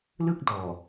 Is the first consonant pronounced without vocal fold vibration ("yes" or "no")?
no